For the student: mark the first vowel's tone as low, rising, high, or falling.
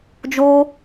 high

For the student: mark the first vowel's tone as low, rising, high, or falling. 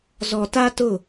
low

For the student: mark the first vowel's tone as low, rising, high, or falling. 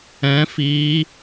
rising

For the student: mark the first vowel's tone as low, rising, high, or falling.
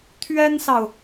high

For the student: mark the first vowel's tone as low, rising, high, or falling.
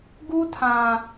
high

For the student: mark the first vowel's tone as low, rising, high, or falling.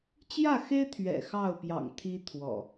falling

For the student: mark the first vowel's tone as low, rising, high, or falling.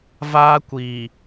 high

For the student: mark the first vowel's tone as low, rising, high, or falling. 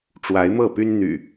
rising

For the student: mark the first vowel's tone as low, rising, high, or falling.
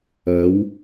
rising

